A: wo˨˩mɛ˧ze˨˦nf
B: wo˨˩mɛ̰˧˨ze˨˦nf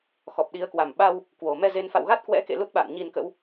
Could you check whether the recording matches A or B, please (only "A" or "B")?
A